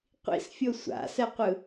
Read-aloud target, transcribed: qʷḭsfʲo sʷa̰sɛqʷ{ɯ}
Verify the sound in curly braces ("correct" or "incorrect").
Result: correct